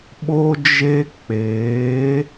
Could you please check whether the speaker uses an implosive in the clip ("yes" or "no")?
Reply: yes